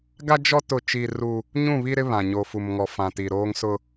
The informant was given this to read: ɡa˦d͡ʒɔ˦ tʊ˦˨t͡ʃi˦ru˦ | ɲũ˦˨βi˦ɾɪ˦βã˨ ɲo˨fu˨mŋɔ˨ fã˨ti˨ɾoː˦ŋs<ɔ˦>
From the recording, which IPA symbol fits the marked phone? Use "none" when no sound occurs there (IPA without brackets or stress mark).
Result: ʊ˦